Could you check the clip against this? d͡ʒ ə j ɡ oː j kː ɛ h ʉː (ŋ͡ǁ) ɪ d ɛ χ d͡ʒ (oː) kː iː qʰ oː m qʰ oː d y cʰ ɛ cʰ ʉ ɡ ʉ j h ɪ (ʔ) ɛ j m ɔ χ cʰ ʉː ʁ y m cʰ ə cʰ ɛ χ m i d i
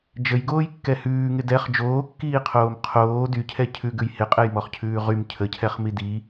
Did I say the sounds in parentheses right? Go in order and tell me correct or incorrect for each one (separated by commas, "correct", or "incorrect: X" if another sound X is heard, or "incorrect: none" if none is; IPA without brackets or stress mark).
incorrect: ŋ, correct, incorrect: qʼ